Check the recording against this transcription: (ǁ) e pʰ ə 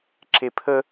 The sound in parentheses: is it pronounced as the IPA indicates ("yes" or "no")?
yes